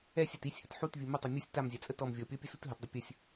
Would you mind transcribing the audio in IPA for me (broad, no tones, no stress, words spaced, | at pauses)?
ɛsʲat isʲhət ħutvʲu mətˤʌ mʲusʲ tamzʲat͡sʼə tɔm vʲɔpʲɔpʲəsut ɦətdˤə pʲəsʲ